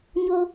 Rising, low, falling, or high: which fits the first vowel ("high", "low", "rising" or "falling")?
high